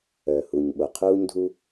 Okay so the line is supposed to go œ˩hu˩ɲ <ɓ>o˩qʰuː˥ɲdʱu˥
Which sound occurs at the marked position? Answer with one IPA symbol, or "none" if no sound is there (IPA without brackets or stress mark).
ɓ